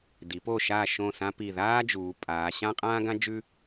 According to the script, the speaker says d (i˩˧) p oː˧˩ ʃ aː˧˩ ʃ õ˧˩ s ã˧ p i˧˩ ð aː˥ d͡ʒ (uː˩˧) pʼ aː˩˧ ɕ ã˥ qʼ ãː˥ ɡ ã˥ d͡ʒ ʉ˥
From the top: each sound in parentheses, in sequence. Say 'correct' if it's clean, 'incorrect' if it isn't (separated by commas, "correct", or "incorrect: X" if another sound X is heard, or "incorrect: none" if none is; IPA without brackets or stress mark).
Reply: correct, correct